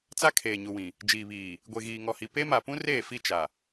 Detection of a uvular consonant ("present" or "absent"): absent